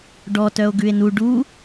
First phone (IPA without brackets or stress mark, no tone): ɖ